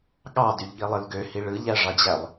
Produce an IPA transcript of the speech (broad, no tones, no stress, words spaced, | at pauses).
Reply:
ɠɑdyʎɠilˠɯl ɡøhi ɭɯʎæʐɑd͡ʑælˠ